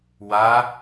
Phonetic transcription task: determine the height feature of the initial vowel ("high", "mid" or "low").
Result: low